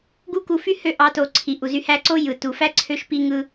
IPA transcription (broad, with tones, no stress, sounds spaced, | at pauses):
ɡ u˦ k u˧ f y˦ h ø˧ ʔ ɑ˨˦ t o˨ ǀʰ i˨ ʔ u˨ z y˧ h æ˧ ǀ o˦ j ɯ˨ t u˨ f æ˦ ǀʰ ø˧ ʃ p i˧ ŋ ɯ˧